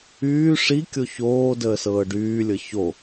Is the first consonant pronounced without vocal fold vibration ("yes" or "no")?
yes